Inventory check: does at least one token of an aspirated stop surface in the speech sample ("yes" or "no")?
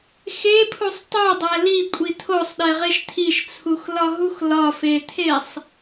yes